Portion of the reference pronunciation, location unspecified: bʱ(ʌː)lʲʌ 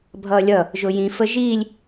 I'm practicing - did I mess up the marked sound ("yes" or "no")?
no